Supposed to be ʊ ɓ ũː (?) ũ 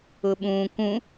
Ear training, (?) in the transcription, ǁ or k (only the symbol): k